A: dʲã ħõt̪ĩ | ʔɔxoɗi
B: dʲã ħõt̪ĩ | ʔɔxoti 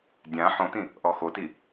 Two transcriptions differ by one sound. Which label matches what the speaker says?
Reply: B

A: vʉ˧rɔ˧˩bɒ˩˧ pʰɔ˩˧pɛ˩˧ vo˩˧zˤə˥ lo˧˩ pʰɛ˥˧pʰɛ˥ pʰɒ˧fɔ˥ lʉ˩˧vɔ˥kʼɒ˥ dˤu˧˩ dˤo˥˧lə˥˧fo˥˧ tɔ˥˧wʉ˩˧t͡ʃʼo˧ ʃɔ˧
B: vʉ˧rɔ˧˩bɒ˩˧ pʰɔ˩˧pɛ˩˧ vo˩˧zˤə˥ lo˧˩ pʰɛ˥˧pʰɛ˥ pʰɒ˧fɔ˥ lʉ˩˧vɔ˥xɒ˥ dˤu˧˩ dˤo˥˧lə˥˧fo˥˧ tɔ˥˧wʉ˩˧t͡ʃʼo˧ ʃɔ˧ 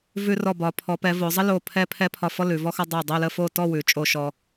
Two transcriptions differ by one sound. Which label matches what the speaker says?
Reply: B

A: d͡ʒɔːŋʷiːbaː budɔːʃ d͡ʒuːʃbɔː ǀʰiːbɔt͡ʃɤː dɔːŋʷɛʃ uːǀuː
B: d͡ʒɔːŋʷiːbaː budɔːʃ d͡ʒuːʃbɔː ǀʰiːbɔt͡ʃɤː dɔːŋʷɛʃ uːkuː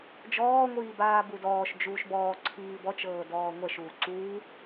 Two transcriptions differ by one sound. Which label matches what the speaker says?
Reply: A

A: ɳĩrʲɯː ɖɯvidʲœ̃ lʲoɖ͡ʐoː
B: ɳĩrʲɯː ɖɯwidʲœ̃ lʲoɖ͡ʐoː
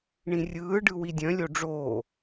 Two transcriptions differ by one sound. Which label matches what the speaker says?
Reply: B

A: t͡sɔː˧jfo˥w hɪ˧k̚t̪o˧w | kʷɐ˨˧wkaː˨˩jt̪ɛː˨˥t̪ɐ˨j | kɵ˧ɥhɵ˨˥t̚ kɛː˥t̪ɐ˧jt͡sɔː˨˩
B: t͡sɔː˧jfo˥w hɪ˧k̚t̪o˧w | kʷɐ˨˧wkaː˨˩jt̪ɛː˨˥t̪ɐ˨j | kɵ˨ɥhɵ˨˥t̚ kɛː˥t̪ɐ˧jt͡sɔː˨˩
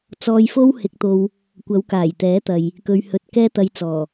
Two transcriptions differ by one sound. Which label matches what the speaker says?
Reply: B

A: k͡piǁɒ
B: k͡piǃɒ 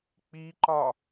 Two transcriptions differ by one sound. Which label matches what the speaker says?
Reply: B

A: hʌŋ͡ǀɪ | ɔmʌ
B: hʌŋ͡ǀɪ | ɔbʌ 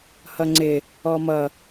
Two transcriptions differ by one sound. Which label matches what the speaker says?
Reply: A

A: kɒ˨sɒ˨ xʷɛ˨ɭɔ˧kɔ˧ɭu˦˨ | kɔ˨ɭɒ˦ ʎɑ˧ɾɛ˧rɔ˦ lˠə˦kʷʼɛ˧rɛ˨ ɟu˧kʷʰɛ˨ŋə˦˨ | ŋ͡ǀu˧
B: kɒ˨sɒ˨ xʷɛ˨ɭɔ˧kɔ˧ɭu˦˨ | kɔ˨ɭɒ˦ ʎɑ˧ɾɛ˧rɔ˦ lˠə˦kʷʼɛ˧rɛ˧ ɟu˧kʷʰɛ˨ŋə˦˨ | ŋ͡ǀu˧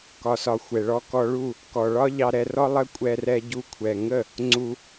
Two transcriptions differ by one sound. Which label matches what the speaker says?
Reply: B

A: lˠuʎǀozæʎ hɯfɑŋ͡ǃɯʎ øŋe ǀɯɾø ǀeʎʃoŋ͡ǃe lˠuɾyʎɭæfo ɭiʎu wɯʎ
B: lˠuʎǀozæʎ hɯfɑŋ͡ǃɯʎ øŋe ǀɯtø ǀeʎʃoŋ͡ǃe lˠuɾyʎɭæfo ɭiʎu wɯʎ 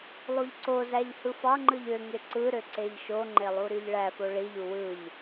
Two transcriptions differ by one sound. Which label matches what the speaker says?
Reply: A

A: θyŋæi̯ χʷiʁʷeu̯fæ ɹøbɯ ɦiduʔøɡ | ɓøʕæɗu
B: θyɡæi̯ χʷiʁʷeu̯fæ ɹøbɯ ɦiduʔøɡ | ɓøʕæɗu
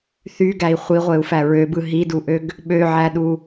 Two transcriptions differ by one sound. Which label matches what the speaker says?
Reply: B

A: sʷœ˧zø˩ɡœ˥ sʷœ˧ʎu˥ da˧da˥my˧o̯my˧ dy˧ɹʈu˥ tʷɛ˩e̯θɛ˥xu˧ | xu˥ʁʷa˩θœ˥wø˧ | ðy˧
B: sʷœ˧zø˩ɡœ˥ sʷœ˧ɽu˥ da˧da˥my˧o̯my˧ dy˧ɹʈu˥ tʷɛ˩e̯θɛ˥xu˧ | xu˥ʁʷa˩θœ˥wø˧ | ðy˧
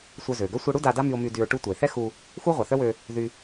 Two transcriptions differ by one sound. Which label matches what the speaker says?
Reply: B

